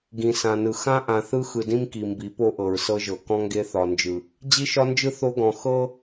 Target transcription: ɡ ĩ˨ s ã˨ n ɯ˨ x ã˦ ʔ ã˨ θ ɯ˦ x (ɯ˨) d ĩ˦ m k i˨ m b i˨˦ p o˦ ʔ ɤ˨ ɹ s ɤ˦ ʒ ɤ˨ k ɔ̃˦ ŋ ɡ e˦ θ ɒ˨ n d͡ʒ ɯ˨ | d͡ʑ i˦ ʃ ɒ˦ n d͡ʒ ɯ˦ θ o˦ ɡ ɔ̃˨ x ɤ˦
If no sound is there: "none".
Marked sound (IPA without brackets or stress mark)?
ɯ˨